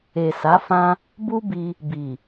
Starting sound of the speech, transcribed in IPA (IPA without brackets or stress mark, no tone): e